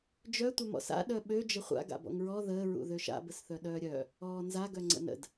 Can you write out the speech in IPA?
d͡ʒ œ tʷ œ m ɔ̰ s a̰ ɗ œ ɓ ø d͡ʒ ə χʷ a̰ ɡ a̰ b ɔ̰ ŋ ɹ ɔ ð əː ɹ ṵ ð ø ʃ a̰ b ə s θ œ ɗ œː ɾʲ œ | ɔː n z a ɡ œ ŋ͡ǀ ə̰ n ə̰ d

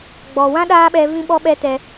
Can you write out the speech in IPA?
ɡ͡b ɔ˨ w ã˦ ɗ aː˦ ɓ ɛ˧ v ĩ˦ ɓ ɔ˦ ɓ ɛ˦ t ɛ˧

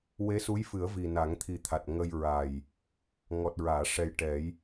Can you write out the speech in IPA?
w e˧˥ s u˧˥ j f ɨ˨˩˦ ə̯ v i˨˩ n a˨˩˦ ŋ t̪ʰ i˨˩ t̪ʰ a˨˩ t̚ ŋ ə˧ j ɹ a˨˩ j | ŋ ɔ˨˩ t̚ ɹ aː˨˩˨ ʂ ɛ˨˩ j ʈ ɛ˨˩˦ j

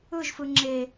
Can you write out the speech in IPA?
ɯ ʒ f ɯ ŋ͡ǁ e

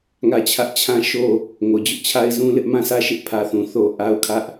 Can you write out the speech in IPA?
ŋ ä˦˨ t͡ɕʰ ä˦ ʔ t͡ɕʰ ã˦ ʃ o˦˨ | ŋ o˨ d͡ʑ ʊ˦ ʔ t͡ɕʰ a˦ ɪ̯ z ũ˦ l ɪ˦ ʔ m ã˦˨ s ä˦˨ ʃ ɪ˦ ʔ pʰ ä˦ θ ũ˨ θ o˦ ʔ a˦ ʊ̯ kʰ ä˦ ʔ

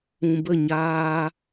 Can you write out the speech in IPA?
ũ˨ b ə˦˨ ɲ aː˧

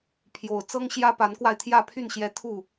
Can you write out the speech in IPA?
pʰ j o˨˩ ʊ̯ t͡s ɤ˦ ŋ ɕ j ä˦ p a˨˦ n k w a˧ ɪ̯ t̪ʰ j ä˥˨ pʰ y˥˨ n ɕ j ɛ˦ t̪ʰ u˥˨

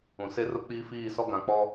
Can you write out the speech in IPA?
ũ˨ s e˦ r ʊ˦ k͡p iː˦ f iː˦˨ s ɔ˦ ɡ ã˨ k͡p ɔ˦

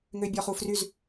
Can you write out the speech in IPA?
ŋ ø bʲ ɔ χ u f r y z

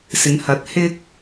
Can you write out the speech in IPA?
s ɪ˨˧ ŋ h ɐ˨˥ t̚ h ɪ˥ k̚

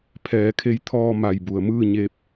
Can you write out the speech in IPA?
pʰ ɛː˩˧ kʰ e˧ j t̪ʰ ɔː˧ m a˧˩ j b u˩ ə̯ m ɯː˥˨ ɲ e˧ p̚

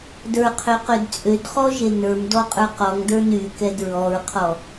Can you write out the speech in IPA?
d ə˞ qʰ ø q ø d t͡sʼ ø d χ ɔ ʒ e n ə˞ m d ɔ qʼ ə˞ q ɔ ŋ d ə˞ n y k ɛ d ɹ ɔ ɹ qʰ ɔ

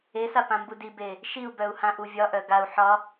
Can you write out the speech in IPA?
e s a p ã m b u d i b e | ʃ i u̯ b œ u̯ h ã ʔ u vʲ ɒ ʔ œ ɡ a u̯ ħ ɒ

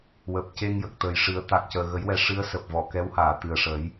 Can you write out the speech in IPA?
w əː˨˩ p̚ c e˧ ŋ j ə˨˩ k̚ t̪ əː˨˩ j ʂ ɨ˨˩˦ ə̯ t̪ a˨˩ k̚ c əː˨˩ ɣ ə˨˩˦ j w ɛ˨˩˦ ʂ ɨ˧˥ ə̯ s əː˨˩ p̚ v ɔ˨˩˨ k ɛ˧˥ w h aː˨˩˨ t̪ ɨ˨˩ ə̯ ʂ ə˨˩˦ j

